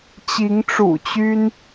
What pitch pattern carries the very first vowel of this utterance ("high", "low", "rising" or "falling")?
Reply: rising